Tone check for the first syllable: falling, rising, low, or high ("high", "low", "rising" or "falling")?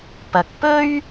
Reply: low